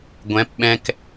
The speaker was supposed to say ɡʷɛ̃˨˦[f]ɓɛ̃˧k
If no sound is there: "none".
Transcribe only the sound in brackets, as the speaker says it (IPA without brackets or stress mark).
p